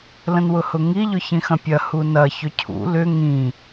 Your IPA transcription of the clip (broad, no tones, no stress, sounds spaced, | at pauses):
l ə̃ n w ʊ h ʊ ŋ i ʎ ʊ ç ĩ x ɐ̃ pʲ ɐ h u n ɐ ç ʏ cʰ ṵ l ʏ ŋ ĩ